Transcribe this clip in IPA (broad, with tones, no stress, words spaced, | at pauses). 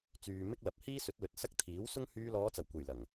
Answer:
t͡syː˨ mɪ˥k̚lɐ˨p̚ hiː˥sɵ˨˥t̚ lɵ˨˥t̚sɐ˥k̚ t̪ʰiː˨˥wsʊ˥ŋ hyː˧lɔː˨˧t͡sɐ˨˩wkʷe˨˩j lɐ˨˩ŋ